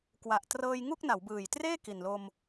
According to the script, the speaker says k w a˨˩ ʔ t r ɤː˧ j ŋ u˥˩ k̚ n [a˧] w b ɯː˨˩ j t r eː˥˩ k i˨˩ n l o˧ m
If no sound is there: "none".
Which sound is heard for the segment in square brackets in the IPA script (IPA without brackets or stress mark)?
a˩˦